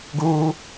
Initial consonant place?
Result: velar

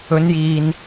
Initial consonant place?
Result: alveolar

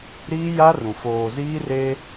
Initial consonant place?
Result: alveolar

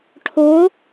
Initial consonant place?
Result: retroflex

